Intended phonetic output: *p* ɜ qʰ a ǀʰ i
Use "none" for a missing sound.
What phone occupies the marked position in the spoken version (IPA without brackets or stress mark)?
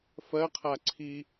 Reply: f